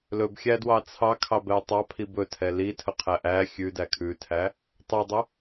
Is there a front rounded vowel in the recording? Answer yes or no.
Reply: no